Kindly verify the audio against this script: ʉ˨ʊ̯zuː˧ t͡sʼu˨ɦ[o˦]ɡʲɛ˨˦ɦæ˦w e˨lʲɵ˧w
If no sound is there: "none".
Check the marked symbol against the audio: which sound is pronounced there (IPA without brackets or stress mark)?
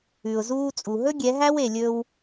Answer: ɵ˦